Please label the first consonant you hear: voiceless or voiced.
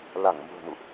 voiced